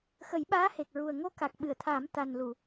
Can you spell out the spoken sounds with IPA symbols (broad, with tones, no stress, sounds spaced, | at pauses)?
x ə˨˩˦ j ɓ aː˧˥ h e˨˩ k̚ ɹ u˨˩ ə̯ ŋ o˧ k a˨˩ k̚ ɓ ɨ˨˩˨ ə̯ t̪ʰ a˨˩˦ m t̪ a˨˩ n l u˨˩˨